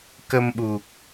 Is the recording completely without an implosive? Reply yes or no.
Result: no